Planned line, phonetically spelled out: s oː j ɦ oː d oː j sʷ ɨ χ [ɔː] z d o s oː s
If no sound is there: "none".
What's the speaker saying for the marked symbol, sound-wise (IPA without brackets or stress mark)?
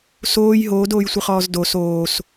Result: ɔː